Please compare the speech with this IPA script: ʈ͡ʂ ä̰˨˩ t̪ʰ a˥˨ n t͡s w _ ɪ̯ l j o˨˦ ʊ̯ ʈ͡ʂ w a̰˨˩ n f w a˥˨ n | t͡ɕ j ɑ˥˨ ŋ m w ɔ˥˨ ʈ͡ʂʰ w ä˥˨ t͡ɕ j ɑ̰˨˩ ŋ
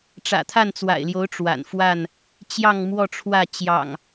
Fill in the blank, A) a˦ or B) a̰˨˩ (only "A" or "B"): B